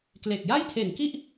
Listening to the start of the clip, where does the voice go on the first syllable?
low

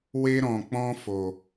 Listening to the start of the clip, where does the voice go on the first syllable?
high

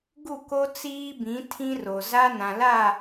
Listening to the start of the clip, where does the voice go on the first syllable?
falling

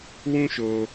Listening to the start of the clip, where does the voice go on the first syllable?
high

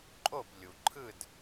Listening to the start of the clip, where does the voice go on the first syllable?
falling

